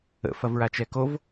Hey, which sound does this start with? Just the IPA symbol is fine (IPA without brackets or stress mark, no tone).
ə̰